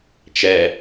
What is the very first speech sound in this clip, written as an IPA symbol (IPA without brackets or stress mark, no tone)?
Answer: t͡ʃ